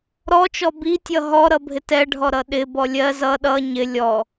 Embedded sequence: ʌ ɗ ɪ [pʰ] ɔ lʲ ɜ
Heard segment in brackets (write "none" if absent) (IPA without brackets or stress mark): b